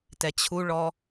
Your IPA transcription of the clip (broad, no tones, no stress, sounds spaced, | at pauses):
t ɛ t͡ɕʰ u ɭ ɔ